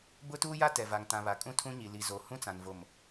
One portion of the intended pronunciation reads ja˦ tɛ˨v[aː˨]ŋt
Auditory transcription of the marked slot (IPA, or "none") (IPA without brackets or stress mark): a˨